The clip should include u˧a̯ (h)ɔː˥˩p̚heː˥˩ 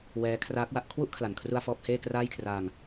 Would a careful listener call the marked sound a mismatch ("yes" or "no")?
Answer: yes